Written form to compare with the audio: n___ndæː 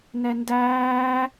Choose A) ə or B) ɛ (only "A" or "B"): B